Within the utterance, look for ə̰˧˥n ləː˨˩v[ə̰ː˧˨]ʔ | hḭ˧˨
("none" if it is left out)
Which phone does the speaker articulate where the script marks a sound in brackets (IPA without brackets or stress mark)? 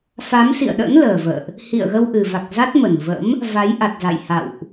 ə̰ː˧˨